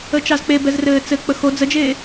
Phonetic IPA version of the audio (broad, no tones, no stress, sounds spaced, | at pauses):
ə t͡ʃ ɑ z k͡p e b ɛ z r ɘː t͡s ɘ k͡p ə x o d͡z ə d͡ʒ eː